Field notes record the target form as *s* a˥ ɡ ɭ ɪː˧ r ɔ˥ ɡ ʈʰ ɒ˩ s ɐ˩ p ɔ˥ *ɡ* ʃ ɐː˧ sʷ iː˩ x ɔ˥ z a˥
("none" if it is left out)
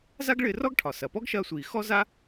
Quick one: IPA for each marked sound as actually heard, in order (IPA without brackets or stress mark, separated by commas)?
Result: z, ɡ